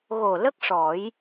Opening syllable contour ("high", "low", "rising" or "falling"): low